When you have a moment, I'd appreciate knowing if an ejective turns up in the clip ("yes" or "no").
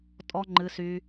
yes